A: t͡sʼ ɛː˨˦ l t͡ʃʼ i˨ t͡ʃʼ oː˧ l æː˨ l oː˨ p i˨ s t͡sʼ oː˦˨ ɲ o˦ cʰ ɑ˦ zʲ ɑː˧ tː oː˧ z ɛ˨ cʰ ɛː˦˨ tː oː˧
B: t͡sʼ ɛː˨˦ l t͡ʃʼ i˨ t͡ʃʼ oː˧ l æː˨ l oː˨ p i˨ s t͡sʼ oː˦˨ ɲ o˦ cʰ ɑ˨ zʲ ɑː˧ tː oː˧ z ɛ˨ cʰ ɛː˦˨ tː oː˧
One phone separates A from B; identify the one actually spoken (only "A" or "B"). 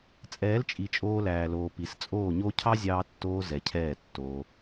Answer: A